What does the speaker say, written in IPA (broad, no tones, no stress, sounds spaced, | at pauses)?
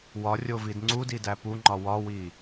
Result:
w ɒ rʲ o v i d ŋ͡ǀ u d i d æ p u ŋ͡ǃ ɒ w ɒ w i